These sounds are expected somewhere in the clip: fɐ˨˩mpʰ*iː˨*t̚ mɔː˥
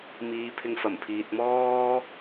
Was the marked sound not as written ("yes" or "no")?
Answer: no